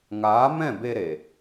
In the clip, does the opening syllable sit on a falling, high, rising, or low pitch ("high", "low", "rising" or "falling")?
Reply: rising